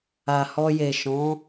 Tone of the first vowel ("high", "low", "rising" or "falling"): low